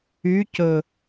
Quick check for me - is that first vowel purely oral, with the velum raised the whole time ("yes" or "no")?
yes